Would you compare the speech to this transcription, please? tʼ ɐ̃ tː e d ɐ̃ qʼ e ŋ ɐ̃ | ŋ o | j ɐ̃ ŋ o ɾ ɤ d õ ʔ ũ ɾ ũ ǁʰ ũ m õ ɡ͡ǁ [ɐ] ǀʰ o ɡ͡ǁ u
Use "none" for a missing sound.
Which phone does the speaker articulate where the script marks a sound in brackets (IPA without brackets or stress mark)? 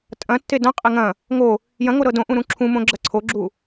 ɐ